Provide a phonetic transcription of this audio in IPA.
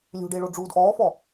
lʲ ṳ ɖ e ɭ o ɖ͡ʐ uː d ʔ ɔː f ɔ

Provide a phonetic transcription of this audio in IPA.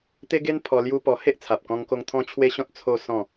t̪ e˦ ɡ e˦ n pʰ ɔ˧ l j u˦ p ɔ˧ h e˦ ʔ t͡sʰ a˨ p̚ k ɔ̃˧ ŋ k o˧ ŋ t̪ʰ ɔ̃˦ t͡ɕʰ w e˦ ɕ ɔ̃˦ t̚ t͡sʰ o˦ s ɔ̃˥˧

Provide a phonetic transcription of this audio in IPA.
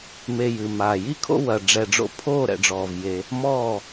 m e˨ j ɨː˨ m aː˨ j i˦ kʰ o̰˦ w ɐ˨ ɖ͡ʐ ɛ˨ ɖ͡ʐ o̰˧ pʰ oː˦˨ ɾ ɛ̰˨ ɖ͡ʐ ɔː˨ v j e˧ | m ɔː˦˨

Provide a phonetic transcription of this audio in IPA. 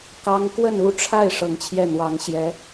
k ɑ˥ ŋ k w ə˥˧ n u˥˧ ʈ͡ʂʰ a˥˩ ɪ̯ ʂ ɤ˧˥ ŋ t͡ɕʰ j ɛ˥˩ n̪ w ɑ˧˥ ŋ ɕ j ɛ˧˥

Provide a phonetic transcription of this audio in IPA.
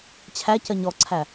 t͡ɕʰ æ c ɜ ɲ ɔ ǀʰ æ

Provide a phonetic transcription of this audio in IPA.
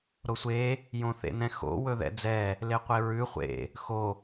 ɾ o sʷ e | j õ θ ḛ n ɛ̃ x o̰ w ɵ ð ɛ̰ d͡z ɛ | l e qʷ e ɹ ʉ χʷ ḛ | x o

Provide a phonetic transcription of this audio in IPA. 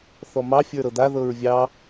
θ ɔ m ɑ fʲ ə˞ ɾ ɤ d̪ a ð ɤ ɹ vʲ ɑ

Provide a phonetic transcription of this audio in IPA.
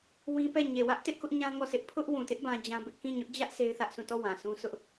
w ĩ˦ p ɛ˦˨ ɲ e˨ w ä˦ ʔ t ɪ˦ ʔ k ʊ˦ ʔ ɲ ã˦ ŋ ɔ˦˨ s ɪ˦ ʔ pʰ ʊ˦ ʔ w ũ˨ t ɪ˦ ʔ b ã˦ d͡ʑ ã˦ b ɪ˦ ʔ k ĩ˦˨ ɲ ʊ˦ ʔ d͡ʑ ä˦ ʔ s e˦ ɪ̯ θ ä˦ ʔ s ũ˦˨ t ɔ˦˨ w ã˨ s ũ˦ s ʊ˦ ʔ

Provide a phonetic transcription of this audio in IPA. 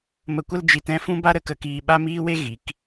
m ə˧ kʷ ə˦ l d͡ʒ i˧ t ɛ̃˦ f ũ˦ b a˦ ɾ ə˨ k ə˧ k iː˧ ɓ a˦ m iː˦ w e˦ ɣ i˨˦ k

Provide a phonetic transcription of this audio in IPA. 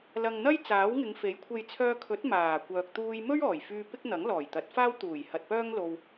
l ɐ˨ ŋ n̪ ɐ˥ j t͡s aː˨˥ w ŋ ɪ˨˧ ŋ f e˨˥ j kʷʰ e˨ j t͡sʰ œː˧ kʰ ɵ˨˥ t̚ m aː˨˩ kʷ œː˨ k̚ t̪ uː˧ j m ɵ˥ ɥ ɔː˨˩ j f yː˧ p ɪ˥ k̚ n̪ ɐ˨˥ ŋ l ɔː˨˩ j t̪ ɐ˨˥ t̚ f aː˥ w t̪ uː˨˩ j h ɐ˨ t̚ p œː˥ ŋ l o˧ w

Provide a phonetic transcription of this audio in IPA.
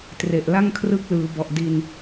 t r e˨˩ ʔ l a˥˩ ŋ kʰ r ɯ˦˥ k̚ l ɯː˩˦ b ɔ˨˩ ʔ d i˧ n

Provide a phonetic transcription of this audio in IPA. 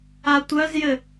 a tʷ œ z j ɘ

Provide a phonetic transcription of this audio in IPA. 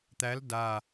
t̪ æ l d a

